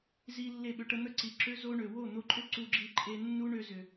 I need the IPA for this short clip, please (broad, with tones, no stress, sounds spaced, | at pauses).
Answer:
z i˧ lː e˦˨ ɓ ʏ˧ ʈ ə˦ n̪ ə˦ ǀ i˨ ǁ ø˦ z o˦ ɳ ø˨ w o˦˨ n̪ o˧ ǃʼ ʏ˦ ǀ u˧ ɡ͡ǁ i˧ ǃʼ e˧ nː u˦ ɳ ø˧ z ʏ˨